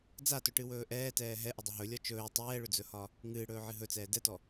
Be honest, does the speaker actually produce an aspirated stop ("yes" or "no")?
no